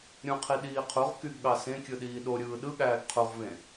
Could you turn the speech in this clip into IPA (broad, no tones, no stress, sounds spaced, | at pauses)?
ɾʲ ũ qʰ i ɗ iː qʰ u ʁ k y ɡ ɠ ɑ s ẽ kʲ ɯ ɗ iː ɗ o ɾʲ ɯː ɗ ɯ ɠ æː ɡ qʰ u ʁ v ẽ